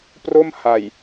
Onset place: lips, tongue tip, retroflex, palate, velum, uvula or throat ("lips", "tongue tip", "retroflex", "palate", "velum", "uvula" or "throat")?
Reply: lips